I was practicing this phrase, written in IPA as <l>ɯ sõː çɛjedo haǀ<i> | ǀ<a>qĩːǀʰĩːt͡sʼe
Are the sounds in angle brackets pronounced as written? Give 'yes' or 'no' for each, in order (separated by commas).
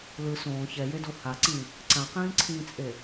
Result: yes, no, no